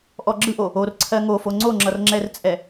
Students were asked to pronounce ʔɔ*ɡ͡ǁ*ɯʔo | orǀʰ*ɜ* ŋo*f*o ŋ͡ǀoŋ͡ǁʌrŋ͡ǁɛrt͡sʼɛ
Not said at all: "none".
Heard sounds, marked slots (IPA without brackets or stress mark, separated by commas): ɡ͡ǁ, ɜ, f